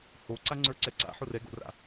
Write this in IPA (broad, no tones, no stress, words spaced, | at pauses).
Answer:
hoǀaŋ͡ǀə˞ǀɛ ǀa̰ħo rɛɡo̰ra̰